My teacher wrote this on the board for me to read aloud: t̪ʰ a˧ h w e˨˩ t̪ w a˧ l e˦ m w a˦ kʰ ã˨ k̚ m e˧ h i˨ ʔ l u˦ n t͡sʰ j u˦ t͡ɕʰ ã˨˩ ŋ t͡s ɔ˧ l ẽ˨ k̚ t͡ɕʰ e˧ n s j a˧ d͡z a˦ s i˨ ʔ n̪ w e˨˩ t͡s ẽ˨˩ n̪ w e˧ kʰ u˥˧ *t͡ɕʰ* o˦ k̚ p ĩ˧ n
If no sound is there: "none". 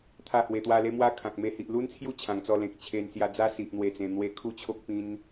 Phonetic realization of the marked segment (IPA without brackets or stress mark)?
t͡ɕʰ